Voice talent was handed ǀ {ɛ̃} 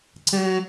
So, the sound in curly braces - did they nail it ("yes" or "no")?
yes